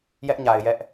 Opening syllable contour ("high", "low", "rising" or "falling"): high